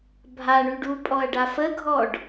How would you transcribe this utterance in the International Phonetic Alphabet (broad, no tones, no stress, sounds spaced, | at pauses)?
bʱ a ɳ y ɖ u pʼ ɔ ɐ̯ ɖ a f ə ɡʱ ɔ ɖ